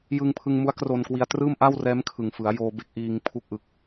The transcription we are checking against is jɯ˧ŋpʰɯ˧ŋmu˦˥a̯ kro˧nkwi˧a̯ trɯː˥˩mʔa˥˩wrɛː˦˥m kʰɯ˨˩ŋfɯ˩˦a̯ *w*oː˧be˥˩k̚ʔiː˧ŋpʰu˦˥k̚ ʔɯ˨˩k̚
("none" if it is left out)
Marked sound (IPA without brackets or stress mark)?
j